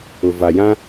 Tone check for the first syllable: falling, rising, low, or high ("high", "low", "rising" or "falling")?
low